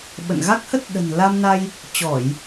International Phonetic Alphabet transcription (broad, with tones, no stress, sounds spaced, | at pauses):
ɓ ə̰˧˨ n ɣ a˦˥ k̚ h ə˦˥ t̚ ɗ ə̤˨˩ n l a˧ m n a˧ j | t͡ɕ ɔ˧˩˨ j